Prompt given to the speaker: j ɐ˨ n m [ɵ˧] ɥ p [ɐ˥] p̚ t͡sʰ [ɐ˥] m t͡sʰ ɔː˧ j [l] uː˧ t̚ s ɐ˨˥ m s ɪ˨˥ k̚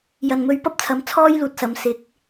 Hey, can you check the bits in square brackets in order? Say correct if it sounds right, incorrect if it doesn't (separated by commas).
correct, correct, incorrect, correct